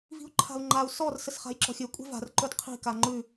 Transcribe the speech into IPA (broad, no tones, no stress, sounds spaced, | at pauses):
v i̤ u̯ ǃʰ a̤ u̯ ŋ͡ǃ a u̯ s ɔ r s ə s χ a̤ j ǁ ɔ̤ xʲ ɘ kʷʼ e̤ v a̤ r ǃ ɵ d qʰ i̤ k a ŋ͡ǃ ʉ